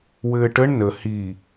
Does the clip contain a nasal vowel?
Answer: no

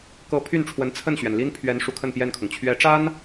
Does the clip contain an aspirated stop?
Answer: yes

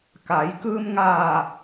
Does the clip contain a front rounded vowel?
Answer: no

